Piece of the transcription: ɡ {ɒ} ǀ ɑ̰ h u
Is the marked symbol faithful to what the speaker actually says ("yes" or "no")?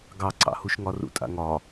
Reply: no